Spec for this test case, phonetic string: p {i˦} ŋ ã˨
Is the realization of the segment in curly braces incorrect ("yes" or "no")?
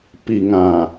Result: yes